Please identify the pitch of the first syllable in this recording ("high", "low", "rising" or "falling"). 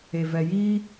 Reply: low